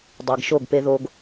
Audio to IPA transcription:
dˤ e˨ ɡ ʃ o˦˨ ɡ p e˦ ð o˦ ɡ

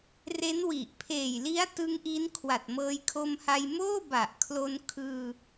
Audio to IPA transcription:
r e˦˥ n w i˨˩ ʔ pʰ eː˨˩ j l i˦˥ a̯ t ɯ˦˥ ŋ ʔ i˦˥ n kʰ w a˨˩ t̚ m ɤː˧ j kʰ o˧ m h a˧ j m oː˥˩ b a˨˩ ʔ kʰ l o˧ n kʰ ɯː˧

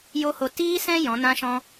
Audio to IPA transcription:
j o˦ h o˧ t iː˦ s ɛ̃˦ j ɔ̃˨˦ n ã˦ ʃ ɔ̃˦

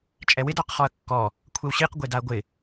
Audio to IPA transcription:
t͡ʃʼ ɛ w ɪ d ɔ q χ ɔ ɐ̯ kː ɔ | kʷʰ e w ɕ i q ɡʷ e d a ɐ̯ ɡʷ ɪ

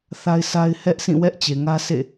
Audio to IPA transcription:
θ a˦ ɪ̯ sʰ a˦ ɪ̯ h ɛ˦ ʔ s ĩ˦˨ w ɛ˦ ʔ t͡ɕ e˨ ŋ ä˦ s ḛ˦˨

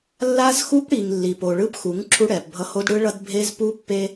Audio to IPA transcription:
lː a˦ z x u˦ p ɽ i˨ ŋ lː i˨ p o˨ ɭ ɯ˦ p x u˨˦ ŋ ǁʰ u˦ ɽ ɛ˨ p bʱ ʌ˦ h o˦ d ɽ ɯ˦ ɭ ʌ˦ d bʱ e˦ z p u˦ pː e˦

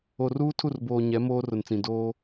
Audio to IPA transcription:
o˨ r uː˦ tʰ u˦˨ r b oː˨ ɲ ɛ˨˦ m oː˦ r ʊ˨ n t͡s ĩ˨ d oː˦

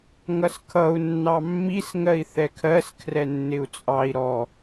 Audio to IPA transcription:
ŋ ʌ s kʰ ʌ u̯ nː ɑ mː i s ŋ ɜ i̯ θ ɛ kʰ ɜ s kʰ r ɛ nː ɪ u̯ t͡sʼ ɑ i̯ ɾ ɔ

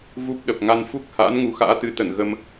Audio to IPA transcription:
v u˦˥ p̚ ɗ ə˨˩ p̚ ŋ a˧ n f u˦˥ k̚ h a̰ː˧˥ n ŋ u˨˦ x a̰ː˧˥ t̪ ɨ˨˦ t̪ ə˧˩ n ɣ ə˧ m

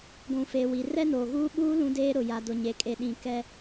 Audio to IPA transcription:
ɡʷ ũ˨ f eː˨ w i˨ r ɛ˦ n oː˨ ɣ uː˦ ɓ uː˦ l ũ˦ d eː˦ ɾ ʊ˨ j a˨ d ʊ˨ ɲ e˨ kʼ e˨ ɗ ĩ˨ k ɛ˦

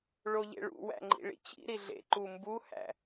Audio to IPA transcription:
ɭ o ʎ ḛ ɭ ṵ w æ̰ ŋ͡ǃ ḭ ɭ ḭ t͡ɕ ḭ ɾ i ɮ ḛ ǃ u m b u h æ̰

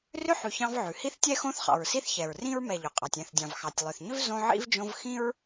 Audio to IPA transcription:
r ʏ˦ ħ ʉ˨ ç ɑ̃˦ v ʕ ʉ˩ h i˥ θ tʲ ɛ˥ x õ˦ θ χ ɑ̰˩ ɹ s i˦ θ ç ɛ˩ ɹ r ĩ˥ ɹ m ɛ˨ ʎ ʏ˩ qʼ ɑ˩ tʲ ɛ̃˨ θ dʲ ɑ̃˩ v x ɑ˩ tʲ lˠ ʏ˩ θ ɲ ʏ˥ v z õ˦ ʕ ḭ˥ v d͡ʒ õ˦ v x ĩ˦ ɹ

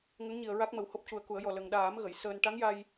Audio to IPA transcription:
ŋ ə˧˥ ŋ ɲ i˨˩ ə̯ ɹ a˦˥ k̚ m ə˨˩ w h o˦˥ p̚ c u˨˩ ə̯ k u˨˩˦ ə̯ j ɔ˨˩ l ə˨˩ ŋ ɗ aː˨˩˦ m ɣ ə˨˩˨ j s əː˧ n ʈ a˧˥ ŋ j a˧ j

